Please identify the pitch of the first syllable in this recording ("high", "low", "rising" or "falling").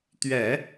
low